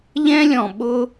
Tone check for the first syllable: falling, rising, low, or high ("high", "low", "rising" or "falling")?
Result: high